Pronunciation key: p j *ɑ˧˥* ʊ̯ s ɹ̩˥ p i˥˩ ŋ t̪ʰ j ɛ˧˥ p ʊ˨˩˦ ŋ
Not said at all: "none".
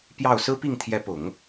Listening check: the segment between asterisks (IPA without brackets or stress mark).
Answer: ɑ˥˩